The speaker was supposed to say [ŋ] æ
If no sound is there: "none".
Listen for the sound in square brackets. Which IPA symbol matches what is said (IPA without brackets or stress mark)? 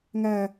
ŋ